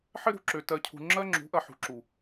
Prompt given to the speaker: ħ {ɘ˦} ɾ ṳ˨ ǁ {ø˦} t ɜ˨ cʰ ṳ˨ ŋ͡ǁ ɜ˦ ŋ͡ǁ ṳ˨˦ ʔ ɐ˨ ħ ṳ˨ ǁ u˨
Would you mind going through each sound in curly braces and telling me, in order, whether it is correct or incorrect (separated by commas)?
correct, incorrect